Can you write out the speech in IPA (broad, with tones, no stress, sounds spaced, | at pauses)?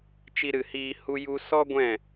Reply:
t͡ʃ i˧ ɾ ɨ˨ h iː˧ h u˦ j u˦ s ɔ˦ ɡʷ ɛ̃˦˨